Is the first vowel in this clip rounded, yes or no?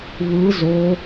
no